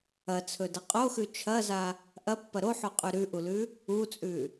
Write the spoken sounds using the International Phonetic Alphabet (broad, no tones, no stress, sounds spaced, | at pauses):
ɐ t͡sʰ ɵ d ɐ qʼ o x ʉ t͡ʃʰ ɐ z a | ʔ ɐ pː ɐ ɾ o ħ o qʼ ʉ ɾ ʉ ʔ u l ʉ | u t͡sʼ ʉ